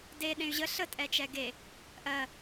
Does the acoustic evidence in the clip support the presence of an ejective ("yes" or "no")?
yes